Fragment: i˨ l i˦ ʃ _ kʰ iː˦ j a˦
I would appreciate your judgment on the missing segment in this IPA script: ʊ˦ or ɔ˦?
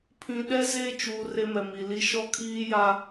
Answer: ɔ˦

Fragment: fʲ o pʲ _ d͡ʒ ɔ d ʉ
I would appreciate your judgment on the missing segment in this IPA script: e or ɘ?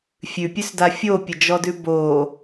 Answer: ɘ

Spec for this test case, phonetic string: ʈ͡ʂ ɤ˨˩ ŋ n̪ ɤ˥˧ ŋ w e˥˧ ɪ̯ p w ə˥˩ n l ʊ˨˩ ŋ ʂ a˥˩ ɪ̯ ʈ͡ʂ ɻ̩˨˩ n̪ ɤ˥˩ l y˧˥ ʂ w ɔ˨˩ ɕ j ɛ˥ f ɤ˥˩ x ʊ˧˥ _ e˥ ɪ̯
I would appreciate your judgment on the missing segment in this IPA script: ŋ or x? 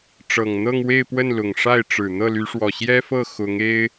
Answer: ŋ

